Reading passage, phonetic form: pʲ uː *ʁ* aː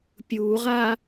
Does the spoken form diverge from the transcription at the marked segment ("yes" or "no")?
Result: no